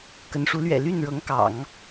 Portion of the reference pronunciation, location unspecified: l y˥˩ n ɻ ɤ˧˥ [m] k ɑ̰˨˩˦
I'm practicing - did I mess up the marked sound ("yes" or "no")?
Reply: yes